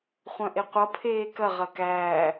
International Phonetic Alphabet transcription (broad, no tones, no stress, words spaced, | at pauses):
χʷœ̃ʔeqʷʌ pʰeːkɐ ʁɐkæː